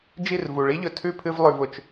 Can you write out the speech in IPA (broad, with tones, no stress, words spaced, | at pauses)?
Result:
d͡ʒi˦˨rvu˨ɭi˦ʎɵ˨ tʰʉ˦˨pʰɨ˧v lˠʉ˨vʊ˨t͡ʃ